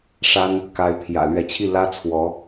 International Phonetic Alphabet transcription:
ʂ a˥ n | k a˧˥ ɪ̯ pʰ j ä̰˨˩ l ɥ ɛ˧˥ t͡ɕʰ i˥˩ l ä˥ t͡sʰ w ɔ˧˥

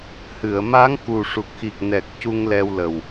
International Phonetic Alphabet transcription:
h ɨ˨˩˨ ə̯ m a˧˥ ŋ k u˨˩ ʂ u˨˩ k̚ x i˨˩ k̚ n ɛ˨˩ k̚ c u˧ ŋ l ɛ˧ w l ə˨˩ w

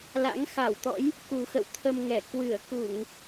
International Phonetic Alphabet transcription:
l a̰˧˥ ŋ x a˧˩ w t̪ ɔ̰˧˥ j | k u˨˩ x ə̰˧˨ w t̪ʰ ə˧ m ŋ ɛ˧˩ k w ɨ˧˩ ə̯ k u˧˩˨ ŋ

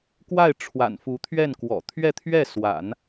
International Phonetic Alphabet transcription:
k w a˥˩ ɪ̯ ʈ͡ʂʰ w a̰˨˩ n f u˧˥ t̪ʰ ɥ ɛ˥˩ n k w ɔ̰˨˩ t̪ʰ ɥ ɛ˥˧ t̪ʰ ɥ ɛ˥˩ s w a̰˨˩˦ n

